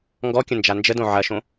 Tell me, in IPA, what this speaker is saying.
ŋ ɡ ɔ kʲ ə̃ n d͡ʒ a n d͡ʒ ə d õ ʕ ɐ ʃ õ

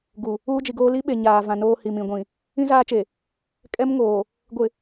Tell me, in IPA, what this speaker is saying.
ɡ u˨ | uː˦ d͡ʒ i˨ ɡ oː˦ l i˦ ɓ e˨ ɲ aː˨ v ã˨ n oː˦ h i˨ m ĩ˨ ɡʷ ĩ˨ | ĩ˦ z aː˦ t͡ʃ e˨ | kʼ ɛ˦ m ŋ oː˨ | ɡʷ ɪ˨

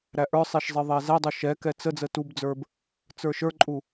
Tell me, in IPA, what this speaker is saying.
ɾ æ ʔ ə˞ sˤ e ʃ zˤ e ðˤ æ z æ dˤ o ʃ ɛ k ɛ t͡s ə d͡z ə t u b d͡z ə˞ b | t͡s ə˞ ʃ ə˞ ǃʼ u

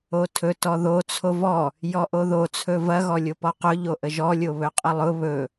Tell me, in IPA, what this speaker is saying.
o tʰ ɵ t ɔ ð o t͡sʰ o v ɔ | j ɔ ʔ o ð o t͡sʰ ɵ v ɐ ɣ ɔ lʲ o p ɔ q ʊ ʎ o ʔ ə ʒ ɔ lʲ o β ɵ qʼ ə lˠ ʊ β ɵ

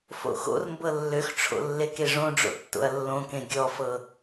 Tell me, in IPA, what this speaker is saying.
f o̰ x o̰ r m b ɤ lː ø x ʈ͡ʂʰ o̰ lː e k e ʐ õ ɖ͡ʐ o̰ tː o̰ ɐ̯ lː õ k ẽ ɡʲ ɔ f ɤ

